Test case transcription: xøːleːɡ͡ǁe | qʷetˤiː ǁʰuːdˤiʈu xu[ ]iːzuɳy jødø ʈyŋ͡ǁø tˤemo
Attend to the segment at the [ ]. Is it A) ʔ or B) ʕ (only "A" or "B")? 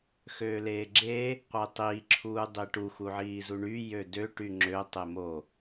B